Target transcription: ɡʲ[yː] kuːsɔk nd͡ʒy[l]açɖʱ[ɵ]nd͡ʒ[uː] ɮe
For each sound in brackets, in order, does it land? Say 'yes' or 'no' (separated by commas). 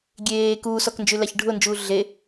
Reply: no, yes, no, yes